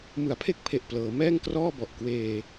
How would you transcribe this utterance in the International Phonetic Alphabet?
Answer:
m ɯ˨˩ a̯ pʰ e˥˩ k̚ pʰ e˨˩ ʔ p l ɤː˩˦ m ɛː˥˩ ŋ k r ɔː˥˩ b ɔ˨˩ ʔ k w eː˧

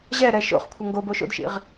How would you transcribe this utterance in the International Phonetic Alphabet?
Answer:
ʑ ɛ ɾ ɛ ʃ o̰ χ kʷʰ ɐ ŋ ɡ o b o ʃ o̰ d ʃ ḭ ʁ

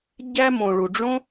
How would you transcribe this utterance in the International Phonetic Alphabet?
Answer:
ɟ æ˧ m õ˨ ɭ u˨ ɖ͡ʐ õ˦

